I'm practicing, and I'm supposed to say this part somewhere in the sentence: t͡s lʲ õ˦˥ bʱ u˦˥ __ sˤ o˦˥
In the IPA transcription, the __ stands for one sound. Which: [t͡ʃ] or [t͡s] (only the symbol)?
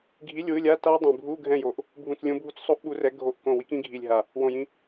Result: t͡s